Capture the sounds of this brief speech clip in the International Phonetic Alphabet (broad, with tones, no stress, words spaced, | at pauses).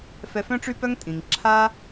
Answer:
fɛ˧fœ̃˦ʈ͡ʂy˦pœ˦ŋ tʼĩ˨ŋǁʰa˦